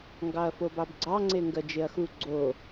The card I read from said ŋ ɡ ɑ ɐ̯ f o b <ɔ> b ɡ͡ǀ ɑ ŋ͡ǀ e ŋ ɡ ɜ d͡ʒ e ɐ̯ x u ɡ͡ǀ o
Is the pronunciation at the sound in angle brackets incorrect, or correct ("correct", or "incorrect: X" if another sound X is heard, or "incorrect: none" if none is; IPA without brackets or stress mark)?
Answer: incorrect: ɑ